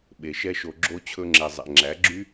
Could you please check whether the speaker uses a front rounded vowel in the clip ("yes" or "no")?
yes